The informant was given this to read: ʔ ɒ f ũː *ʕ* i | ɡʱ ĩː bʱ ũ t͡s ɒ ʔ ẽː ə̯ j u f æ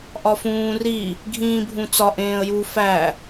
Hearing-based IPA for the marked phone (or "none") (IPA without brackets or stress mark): r